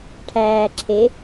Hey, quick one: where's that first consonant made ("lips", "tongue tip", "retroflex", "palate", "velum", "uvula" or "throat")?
retroflex